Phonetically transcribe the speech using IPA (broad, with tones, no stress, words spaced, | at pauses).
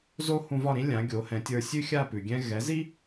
zo˥hũ˧vɒ˥˩ɾĩ˥ lʲã˩˥ɡʲo˩˥hɛ̃˩˥tʲə˞˧ sʲʉ˥xʲa˥˩pʉ˩ ɡʲɛ̃˧ɣɛ˩˥zi˥